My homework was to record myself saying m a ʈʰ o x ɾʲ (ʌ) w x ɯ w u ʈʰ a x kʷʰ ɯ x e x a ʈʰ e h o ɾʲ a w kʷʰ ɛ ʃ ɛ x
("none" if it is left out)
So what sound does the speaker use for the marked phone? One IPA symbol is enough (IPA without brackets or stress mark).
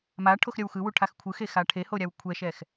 ʌ